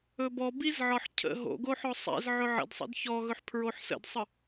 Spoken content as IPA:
ɵ b ɔ b i z ʕ ɒ ħ cʰ ə̰ ɦ o̰ ɡ o ħ ɔ sˤ ɛ̰ z ʕ ɵ ʕ ə̰ d sˤ ə̰ d ç ɔ ɣ ɵ ħ pʰ ɹ o ħ s ə̰ d sˤ ə

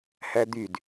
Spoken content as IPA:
h æ d̪ y d

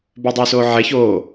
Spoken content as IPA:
b ø dˤ ʉː s oː ʕ ɛ ç oː

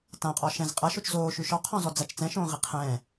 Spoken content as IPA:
t ã qʼ ɔ ʃ ɛ̃ z qʼ ɐ ʃ o t͡ʃ z oː ʃ ʉ ʃ ɔ qʰ ɔ̃ z ɔ d͡z ɐ t͡ʃ t͡s ɛ̃ ʃ õː ʁ i qʰ ɛ̃

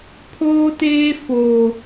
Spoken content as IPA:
pʰ oː˦ t eː˦ f oː˦

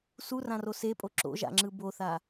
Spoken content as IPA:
s u r ã r o s e pʼ o ǁ o̰ ʒ a̰ ŋ͡ǁ ɯ b o θ a

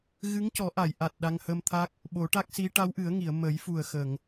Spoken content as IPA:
ɣ ɨ˧˥ ŋ c ɔ˨˩˦ ʔ a˨˩˨ j ʔ a˨˩ t̚ ɗ a˧ ŋ h ə˧ m t̪ʰ a˦˥ k̚ | ɓ o˨˩˦ ʈ a˦˥ k̚ s i˧˥ ʈ a˧˥ w ʔ ɨ˨˩˦ ə̯ ŋ i˨˩˨ ə̯ m ə˨˩˦ j f u˨˩ ə̯ x ə˨˩˨ ŋ

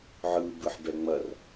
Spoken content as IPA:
ʕ ɯ b ɯ ħ b ɛ ŋ͡m ɐ r

